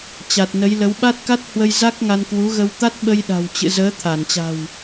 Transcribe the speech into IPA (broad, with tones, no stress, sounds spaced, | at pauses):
t͡ɕ a˨˩ t̚ n ə˨˦ j l ə˨˦ w ɓ a˦˥ t̚ k a˦˥ t̚ h w ə˧ j z a˦˥ k̚ ŋ a˧ n k w u˨˦ ɣ ə˧ w t̪ a˦˥ t̚ ɓ ə˧ j ɗ a̤˨˩ w t͡ɕ ɨ̰˧˨ z əː˨˦ t̪ʰ a˧˩ n t͡ɕ a̤˨˩ w